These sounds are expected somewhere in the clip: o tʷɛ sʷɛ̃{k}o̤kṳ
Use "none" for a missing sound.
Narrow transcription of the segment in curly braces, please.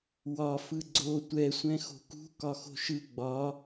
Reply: x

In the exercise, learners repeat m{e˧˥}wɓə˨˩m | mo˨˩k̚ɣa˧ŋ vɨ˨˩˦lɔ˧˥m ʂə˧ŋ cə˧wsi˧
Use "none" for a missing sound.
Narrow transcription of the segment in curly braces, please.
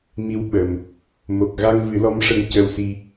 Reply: i˧˥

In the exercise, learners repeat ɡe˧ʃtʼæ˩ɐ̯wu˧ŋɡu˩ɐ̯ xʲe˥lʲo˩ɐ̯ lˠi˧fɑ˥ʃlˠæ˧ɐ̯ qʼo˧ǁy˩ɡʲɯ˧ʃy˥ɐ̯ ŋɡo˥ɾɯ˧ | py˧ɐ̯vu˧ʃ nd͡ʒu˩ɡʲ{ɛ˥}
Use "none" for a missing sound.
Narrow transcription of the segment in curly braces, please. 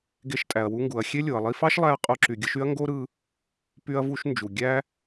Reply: æ˥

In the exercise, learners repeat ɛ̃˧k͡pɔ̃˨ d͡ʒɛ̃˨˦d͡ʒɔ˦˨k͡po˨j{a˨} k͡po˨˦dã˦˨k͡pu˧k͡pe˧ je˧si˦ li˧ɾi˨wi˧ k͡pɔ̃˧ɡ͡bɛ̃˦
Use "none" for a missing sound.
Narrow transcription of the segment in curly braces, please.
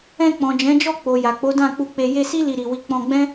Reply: a˨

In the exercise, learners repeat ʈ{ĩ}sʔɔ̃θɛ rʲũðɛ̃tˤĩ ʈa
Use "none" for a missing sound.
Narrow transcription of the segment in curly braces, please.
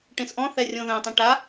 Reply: ĩ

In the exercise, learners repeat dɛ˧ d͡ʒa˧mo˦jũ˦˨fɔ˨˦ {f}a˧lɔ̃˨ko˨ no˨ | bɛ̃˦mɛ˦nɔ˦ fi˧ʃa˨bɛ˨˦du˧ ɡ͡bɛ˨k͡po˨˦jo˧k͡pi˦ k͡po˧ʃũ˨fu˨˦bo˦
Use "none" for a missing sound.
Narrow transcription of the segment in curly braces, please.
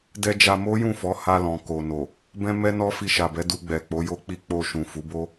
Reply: h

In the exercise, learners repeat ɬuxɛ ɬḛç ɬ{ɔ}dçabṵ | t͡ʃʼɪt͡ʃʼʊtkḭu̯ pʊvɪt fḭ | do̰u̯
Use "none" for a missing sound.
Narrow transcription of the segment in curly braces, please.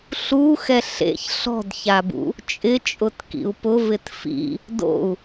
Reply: ɔ̤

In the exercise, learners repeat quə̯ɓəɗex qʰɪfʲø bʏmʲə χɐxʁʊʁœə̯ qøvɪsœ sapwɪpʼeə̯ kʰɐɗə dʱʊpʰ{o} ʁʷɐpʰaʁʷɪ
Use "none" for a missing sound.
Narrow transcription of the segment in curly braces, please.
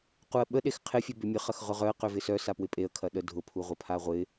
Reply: u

